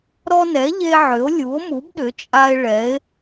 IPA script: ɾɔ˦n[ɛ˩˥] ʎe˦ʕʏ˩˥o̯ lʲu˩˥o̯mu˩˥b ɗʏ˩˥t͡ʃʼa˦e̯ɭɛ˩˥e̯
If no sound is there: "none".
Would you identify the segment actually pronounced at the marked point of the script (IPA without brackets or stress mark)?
ɛ˩˥